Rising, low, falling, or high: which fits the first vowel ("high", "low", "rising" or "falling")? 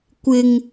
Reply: low